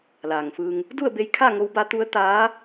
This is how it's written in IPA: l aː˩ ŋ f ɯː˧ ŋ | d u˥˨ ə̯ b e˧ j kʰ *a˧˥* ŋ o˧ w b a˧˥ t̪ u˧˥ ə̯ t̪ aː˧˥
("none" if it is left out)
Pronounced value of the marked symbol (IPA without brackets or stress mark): a˥˨